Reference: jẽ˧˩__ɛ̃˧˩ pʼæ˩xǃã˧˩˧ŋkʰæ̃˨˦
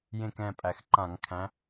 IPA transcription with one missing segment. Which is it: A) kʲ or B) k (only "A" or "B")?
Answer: B